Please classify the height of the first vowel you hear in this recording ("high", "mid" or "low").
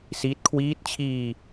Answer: high